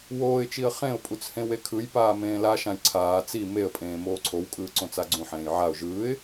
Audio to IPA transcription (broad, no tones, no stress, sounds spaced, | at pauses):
w oː ɪ̯ t͡ʃ i ə̯ χ ẽ ʊ̯ pʼ u t͡s h ẽ w e kʰ ɯ j p aː m ẽː l a ʃ ã j ǀʰ aː t͡s i m e ə̯ pʼ ẽː m oː ǀʰ o w kʼ ɯː ǀ õ t͡s a ɡ͡ǀ ũ ħ ẽː j ʕ a ʊ̯ ʒ ɯː ɪ̯